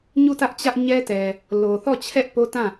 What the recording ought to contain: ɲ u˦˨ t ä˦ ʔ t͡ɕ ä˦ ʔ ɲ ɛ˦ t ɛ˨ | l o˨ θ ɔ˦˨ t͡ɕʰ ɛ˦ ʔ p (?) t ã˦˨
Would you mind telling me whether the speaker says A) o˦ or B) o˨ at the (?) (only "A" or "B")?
A